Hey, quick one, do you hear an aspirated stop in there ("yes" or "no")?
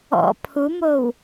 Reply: yes